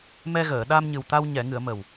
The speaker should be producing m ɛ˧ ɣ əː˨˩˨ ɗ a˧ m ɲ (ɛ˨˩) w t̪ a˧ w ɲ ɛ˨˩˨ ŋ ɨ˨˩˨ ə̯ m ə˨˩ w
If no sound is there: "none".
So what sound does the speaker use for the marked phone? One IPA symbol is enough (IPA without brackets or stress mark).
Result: ɨ˨˩